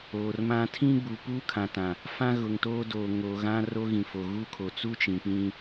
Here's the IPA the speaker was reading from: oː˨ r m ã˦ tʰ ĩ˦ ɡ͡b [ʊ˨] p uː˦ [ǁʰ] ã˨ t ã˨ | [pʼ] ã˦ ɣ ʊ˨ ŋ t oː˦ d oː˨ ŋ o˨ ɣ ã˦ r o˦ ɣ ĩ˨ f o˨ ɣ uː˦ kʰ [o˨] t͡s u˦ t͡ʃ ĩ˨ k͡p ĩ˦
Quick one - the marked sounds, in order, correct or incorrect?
incorrect: u˨, incorrect: kʰ, incorrect: f, correct

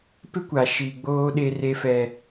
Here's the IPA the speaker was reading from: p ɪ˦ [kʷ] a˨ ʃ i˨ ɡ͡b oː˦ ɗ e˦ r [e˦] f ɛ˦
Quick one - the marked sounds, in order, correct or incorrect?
correct, correct

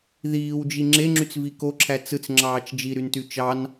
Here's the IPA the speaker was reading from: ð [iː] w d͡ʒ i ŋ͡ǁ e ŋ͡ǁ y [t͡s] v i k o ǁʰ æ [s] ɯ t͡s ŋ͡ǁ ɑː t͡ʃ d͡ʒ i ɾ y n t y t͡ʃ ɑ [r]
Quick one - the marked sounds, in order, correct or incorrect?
correct, correct, incorrect: t͡s, incorrect: n

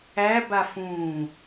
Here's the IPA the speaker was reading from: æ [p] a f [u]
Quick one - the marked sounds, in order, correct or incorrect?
incorrect: b, incorrect: ũ

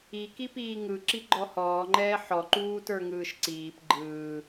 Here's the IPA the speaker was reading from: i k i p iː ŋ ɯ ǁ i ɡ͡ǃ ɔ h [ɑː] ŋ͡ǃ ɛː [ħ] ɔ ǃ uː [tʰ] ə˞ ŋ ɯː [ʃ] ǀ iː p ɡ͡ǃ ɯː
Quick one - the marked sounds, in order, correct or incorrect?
incorrect: ɔː, correct, incorrect: t, correct

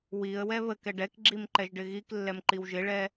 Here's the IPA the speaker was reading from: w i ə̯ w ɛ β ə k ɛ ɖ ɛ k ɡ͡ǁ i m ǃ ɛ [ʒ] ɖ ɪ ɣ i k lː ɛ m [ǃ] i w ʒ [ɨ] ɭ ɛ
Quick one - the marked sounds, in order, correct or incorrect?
correct, correct, incorrect: ɪ

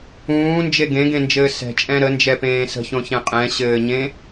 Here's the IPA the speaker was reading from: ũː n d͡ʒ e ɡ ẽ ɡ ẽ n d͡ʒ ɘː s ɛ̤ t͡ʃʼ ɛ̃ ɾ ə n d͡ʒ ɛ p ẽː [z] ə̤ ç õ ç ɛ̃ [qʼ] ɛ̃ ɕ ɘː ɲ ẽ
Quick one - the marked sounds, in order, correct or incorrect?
incorrect: s, correct

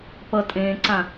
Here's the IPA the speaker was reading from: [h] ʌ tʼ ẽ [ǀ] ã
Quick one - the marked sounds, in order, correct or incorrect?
incorrect: p, correct

